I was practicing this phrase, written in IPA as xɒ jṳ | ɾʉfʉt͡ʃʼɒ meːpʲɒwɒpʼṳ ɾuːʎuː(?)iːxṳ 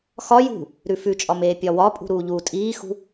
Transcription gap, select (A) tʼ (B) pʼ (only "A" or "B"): A